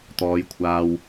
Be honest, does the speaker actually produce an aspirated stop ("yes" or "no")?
yes